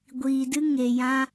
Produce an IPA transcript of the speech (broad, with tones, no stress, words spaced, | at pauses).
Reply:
ɡʷiː˨dɨ˧ ŋe˨jã˧